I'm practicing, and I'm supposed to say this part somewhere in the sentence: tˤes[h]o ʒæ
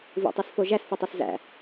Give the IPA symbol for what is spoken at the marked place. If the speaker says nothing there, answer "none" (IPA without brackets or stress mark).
f